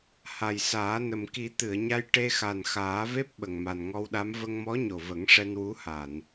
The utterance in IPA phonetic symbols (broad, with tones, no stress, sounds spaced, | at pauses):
h a˨˩ j s aː˨˩˦ n ə˨˩ m k i˨˩˦ t̪ ɨ˨˩˨ ə̯ ɲ a˧ j ʈ e˧ x a˨˩ n x aː˨˩˦ v e˦˥ p̚ ɓ ə˨˩ ŋ m a˨˩ n ŋ ɔ˧ w ɗ a˧˥ m v ə˧ ŋ m ɔ˧˥ ɲ o˨˩ v ə˨˩˦ ŋ ʂ ɛ˧ n w u˧˥ h a˨˩˨ n